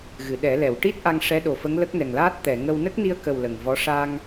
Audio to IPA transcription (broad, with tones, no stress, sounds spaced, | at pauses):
ɣ ɨ˨˩˨ ɗ ɛ˨˩˦ l ɛ˨˩˨ w ʈ i˦˥ t̚ ʔ a˧ ŋ ʂ ɛ˧˥ ɗ o˨˩ f ə˧˥ ŋ l ə˦˥ k̚ n ɛ˨˩ ŋ l aː˦˥ t̚ t̪ ɛ˨˩˨ ŋ ə˧ w n ə˦˥ k̚ n i˧ ə̯ k ə˨˩ w l ə˨˩ ŋ v ɔ˧˥ ʂ a˧ ŋ